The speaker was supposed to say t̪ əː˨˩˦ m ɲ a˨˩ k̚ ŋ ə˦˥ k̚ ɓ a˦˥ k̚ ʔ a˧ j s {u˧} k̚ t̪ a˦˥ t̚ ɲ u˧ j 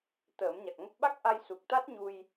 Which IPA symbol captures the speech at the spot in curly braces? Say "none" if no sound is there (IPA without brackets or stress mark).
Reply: u˨˩